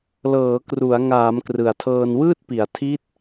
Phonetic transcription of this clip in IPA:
lɤː˩˦kru˩˦a̯ ŋaː˩˦m krɯ˨˩a̯tʰɤː˧nwɯː˥˩t̚pi˩˦a̯ tʰi˦˥t̚

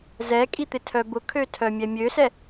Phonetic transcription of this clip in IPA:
zɛkʼit̪ɪtʰœ bʊkʰøtʰœmʲɛ mʲøsɛ

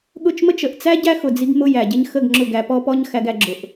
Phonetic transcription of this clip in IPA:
ɠʊ˦˨t͡ʃmə˦t͡ʃ ə˨ʔt͡sæ˦ ɟæ˦xʊ˨ d͡zi˦ɡmʊ˦jæ˨ɟɪ˦ɲ xə˦˨ɡ ŋ͡ǁʊ˦˨ɡæ˧pɔ˦pɔ˦ɲ xæ˧ɡæ˧ɡ͡ǁʊ˨ʔ

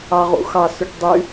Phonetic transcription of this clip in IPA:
ɑʁṵxɑsʉʈ dˤy

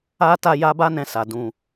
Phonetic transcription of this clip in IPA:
a˦ ta˦ja˦ ba˦nɛ̃˧sa˨ dũ˧

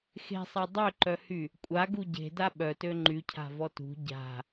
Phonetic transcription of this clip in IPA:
xe̤sˤa dˤøǃœhy | kʷʼaɡu ɟe̤da ɓœtø ŋ͡ǃycʰa̤vɔ tṳ ɟa̤

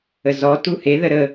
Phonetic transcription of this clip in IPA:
əzɔ tuhe ðəɾə

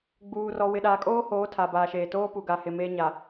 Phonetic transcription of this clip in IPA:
ɡ͡buː˨rɔ˨ wɪ˨ɗaː˨kʼoː˦hoː˨˦ tʰa˨baː˨ʃeː˨ toː˦pu˨ɡa˨hɪ˨ meː˦ɲa˨

